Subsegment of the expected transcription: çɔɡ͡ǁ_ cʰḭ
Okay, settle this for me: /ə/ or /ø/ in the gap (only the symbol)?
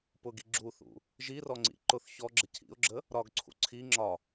ə